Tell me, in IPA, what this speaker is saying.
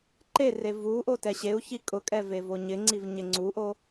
ǃ e r e v u ʔ o t ɛ ɕ e u̯ ç i kʼ ʊ kʼ ɛ v e v o ɲ ɪ ŋ͡ǀ i v ɲ ɪ ŋ͡ǀ u ʔ o

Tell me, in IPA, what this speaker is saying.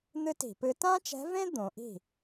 n̪ ɨ˥ t i̤˧˩˧ p ɨ˧˥ t ã˥ t͡ʃ ɛ̤˧˥ v ẽ˥ d̪ õ˩˧ ʔ i̤˥˩

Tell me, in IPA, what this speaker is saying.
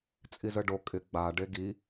t͡sʼ i z ə ɖ o kʼ ɪ ɡ͡b a ɖ e ɡ i

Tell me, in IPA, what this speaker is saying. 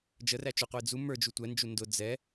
d͡ʒ ə r æ t͡ʃ ʊ qʷ i d͡z u m ə˞ d͡ʒ u tʷ ɛ n d͡ʒ u n d ʊ d͡z ɛ

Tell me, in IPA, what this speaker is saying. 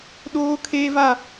ɗ oː˦ kʰ eː˦ v a˦˨

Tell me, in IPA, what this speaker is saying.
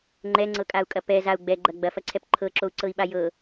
ŋ͡ǃ ɛ ŋ͡ǀ ɤ kʼ a u̯ kʼ ɐ p ɛ z a u̯ ɡ͡b ɛ ɡ͡ǃ ɐ ɡ͡b ɐ f ɐ ǀʰ ɛ p ǃʰ ɤ ǁ o u̯ ǀ ɤ i̯ ɓ a j ɤ

